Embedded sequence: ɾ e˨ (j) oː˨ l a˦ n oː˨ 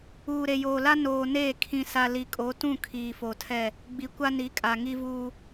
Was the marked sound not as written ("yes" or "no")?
no